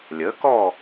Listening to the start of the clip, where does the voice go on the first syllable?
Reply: rising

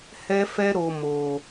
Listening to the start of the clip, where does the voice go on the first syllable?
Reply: high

